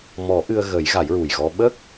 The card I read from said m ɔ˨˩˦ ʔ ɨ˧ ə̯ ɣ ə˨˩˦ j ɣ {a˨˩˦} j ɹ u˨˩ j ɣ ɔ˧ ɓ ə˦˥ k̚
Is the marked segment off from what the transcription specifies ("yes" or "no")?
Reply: no